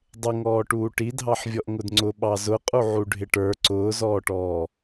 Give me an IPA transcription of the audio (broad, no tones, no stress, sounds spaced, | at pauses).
dˤ ɪ ŋ ɔː ʈ uː ʈ i dʱ ɑ ħ vʲ ɔ ʔ ŋ ʊ d ŋ͡ǀ ʊ ɓ ɑ z ʊ qʼ u ʕ u ɖʱ ɪ ʈ ə˞ ǀ ʊː z ɔː ʈ ɔː